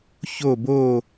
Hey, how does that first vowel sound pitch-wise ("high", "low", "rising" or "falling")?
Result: falling